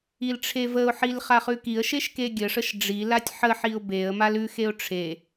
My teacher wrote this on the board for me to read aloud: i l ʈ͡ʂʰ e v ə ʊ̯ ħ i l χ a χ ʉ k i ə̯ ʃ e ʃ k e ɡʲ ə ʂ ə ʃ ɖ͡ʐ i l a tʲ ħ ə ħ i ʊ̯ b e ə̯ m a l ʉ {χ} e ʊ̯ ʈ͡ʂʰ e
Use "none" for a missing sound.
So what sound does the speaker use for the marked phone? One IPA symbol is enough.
x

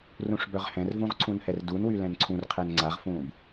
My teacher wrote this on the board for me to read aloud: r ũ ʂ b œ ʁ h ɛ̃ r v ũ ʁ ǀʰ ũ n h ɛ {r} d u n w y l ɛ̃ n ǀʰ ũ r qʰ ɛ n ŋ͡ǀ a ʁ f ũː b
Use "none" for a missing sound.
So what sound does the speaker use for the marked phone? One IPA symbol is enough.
r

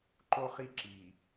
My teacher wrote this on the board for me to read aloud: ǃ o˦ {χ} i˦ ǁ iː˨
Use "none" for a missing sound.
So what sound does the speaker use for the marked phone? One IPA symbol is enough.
χ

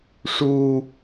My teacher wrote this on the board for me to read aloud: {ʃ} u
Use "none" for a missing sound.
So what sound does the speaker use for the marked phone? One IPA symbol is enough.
ʂ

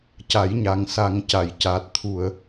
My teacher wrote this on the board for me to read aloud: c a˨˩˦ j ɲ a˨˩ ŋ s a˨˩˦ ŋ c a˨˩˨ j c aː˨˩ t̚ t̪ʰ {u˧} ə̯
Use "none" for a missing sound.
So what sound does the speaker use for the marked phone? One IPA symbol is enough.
u˨˩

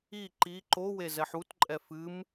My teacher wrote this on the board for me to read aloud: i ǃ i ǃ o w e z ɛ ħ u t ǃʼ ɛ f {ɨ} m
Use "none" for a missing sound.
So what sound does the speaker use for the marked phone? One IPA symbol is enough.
ɨ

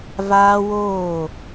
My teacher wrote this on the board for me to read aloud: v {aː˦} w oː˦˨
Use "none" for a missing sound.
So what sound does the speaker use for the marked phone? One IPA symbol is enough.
aː˦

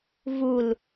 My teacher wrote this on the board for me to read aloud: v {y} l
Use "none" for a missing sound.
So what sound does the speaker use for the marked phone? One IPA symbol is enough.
u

